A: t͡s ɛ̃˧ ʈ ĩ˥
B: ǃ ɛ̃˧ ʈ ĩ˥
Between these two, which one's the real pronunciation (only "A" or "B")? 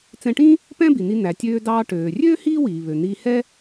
A